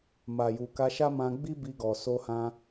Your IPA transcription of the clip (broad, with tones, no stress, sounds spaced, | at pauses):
m a˨ j u˨ k a˧ ʃ a˦ m ã˧ ɡ͡b i˦ b i˧ ɡ ɔ˨ s o˧ h ã˧